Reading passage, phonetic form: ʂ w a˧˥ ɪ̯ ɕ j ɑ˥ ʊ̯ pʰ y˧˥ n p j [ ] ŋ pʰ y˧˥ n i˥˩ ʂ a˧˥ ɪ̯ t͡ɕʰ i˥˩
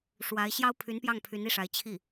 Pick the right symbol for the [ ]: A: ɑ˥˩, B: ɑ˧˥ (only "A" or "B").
A